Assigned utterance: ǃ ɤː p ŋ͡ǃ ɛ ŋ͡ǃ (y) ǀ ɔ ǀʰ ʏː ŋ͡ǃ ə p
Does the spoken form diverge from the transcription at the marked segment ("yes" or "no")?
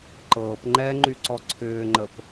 no